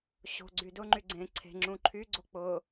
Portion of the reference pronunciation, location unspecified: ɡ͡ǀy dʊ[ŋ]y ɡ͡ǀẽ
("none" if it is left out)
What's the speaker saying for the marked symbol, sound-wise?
ŋ͡ǃ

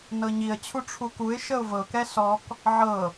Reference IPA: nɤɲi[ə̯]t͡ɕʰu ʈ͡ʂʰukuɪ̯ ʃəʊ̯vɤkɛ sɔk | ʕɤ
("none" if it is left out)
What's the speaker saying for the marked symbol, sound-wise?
ə̯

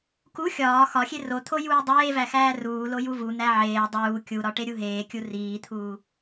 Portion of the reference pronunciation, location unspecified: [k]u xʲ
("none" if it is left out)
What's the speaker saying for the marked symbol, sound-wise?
k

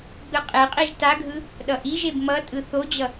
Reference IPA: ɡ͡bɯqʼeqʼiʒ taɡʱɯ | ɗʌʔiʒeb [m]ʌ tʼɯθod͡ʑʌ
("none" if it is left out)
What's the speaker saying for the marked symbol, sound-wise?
m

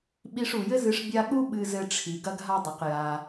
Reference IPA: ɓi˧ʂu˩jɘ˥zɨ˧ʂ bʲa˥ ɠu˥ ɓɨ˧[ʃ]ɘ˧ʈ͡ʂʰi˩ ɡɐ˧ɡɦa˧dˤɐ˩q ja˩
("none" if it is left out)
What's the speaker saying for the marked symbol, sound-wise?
z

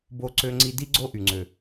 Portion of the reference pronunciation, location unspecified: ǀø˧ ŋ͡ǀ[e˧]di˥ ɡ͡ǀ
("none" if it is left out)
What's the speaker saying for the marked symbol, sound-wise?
i˧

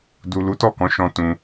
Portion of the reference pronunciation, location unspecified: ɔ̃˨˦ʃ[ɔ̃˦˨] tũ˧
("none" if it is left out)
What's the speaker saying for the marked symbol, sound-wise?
ɔ̃˧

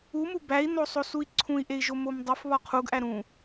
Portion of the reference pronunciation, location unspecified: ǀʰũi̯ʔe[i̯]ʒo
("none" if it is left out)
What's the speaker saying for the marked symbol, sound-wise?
i̯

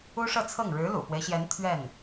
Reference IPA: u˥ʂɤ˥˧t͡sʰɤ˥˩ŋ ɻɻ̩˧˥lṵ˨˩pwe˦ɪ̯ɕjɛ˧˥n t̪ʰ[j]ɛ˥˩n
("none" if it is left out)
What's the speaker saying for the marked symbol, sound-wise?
ɥ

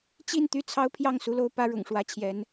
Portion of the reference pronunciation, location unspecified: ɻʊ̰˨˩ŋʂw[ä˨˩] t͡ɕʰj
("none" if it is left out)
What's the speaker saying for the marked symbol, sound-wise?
ä˧˥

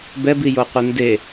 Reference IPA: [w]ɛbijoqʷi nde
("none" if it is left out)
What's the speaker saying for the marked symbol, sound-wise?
b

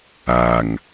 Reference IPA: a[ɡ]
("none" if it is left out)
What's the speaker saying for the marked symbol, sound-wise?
ŋ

